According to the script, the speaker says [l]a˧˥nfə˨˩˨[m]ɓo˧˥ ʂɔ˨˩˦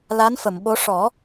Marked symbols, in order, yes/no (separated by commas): yes, yes